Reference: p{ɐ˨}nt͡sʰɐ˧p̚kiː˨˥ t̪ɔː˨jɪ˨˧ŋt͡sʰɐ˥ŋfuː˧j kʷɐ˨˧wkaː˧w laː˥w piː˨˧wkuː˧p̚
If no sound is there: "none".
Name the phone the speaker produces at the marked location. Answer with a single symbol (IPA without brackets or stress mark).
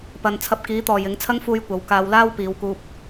ɐ˨